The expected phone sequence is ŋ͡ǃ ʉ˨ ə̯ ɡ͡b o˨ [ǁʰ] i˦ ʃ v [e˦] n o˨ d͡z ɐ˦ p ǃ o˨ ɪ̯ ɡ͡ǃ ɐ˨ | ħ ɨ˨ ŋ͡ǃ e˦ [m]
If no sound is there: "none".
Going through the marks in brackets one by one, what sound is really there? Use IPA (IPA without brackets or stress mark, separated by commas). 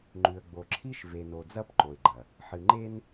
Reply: ǁʰ, e˨, n